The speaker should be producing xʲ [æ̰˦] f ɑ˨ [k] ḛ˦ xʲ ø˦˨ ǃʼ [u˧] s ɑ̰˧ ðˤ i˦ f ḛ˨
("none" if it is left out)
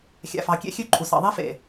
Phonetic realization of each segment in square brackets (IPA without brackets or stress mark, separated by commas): æ̰˨, kʲ, u˨